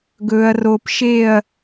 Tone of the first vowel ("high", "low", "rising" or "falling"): low